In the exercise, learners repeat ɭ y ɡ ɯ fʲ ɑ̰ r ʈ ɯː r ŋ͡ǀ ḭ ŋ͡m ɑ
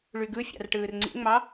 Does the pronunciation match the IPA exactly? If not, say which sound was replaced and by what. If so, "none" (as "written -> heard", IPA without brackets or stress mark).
none